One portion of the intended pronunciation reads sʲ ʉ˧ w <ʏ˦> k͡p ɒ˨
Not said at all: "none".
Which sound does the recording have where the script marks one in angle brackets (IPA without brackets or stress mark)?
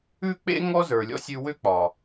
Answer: ʏ˦